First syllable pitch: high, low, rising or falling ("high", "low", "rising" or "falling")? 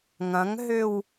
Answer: rising